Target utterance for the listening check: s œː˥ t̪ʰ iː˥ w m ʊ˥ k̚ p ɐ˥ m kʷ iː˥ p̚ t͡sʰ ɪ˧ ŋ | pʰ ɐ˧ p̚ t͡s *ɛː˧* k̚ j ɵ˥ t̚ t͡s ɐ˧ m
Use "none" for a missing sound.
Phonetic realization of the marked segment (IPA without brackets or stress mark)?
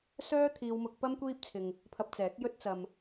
ɛː˨˥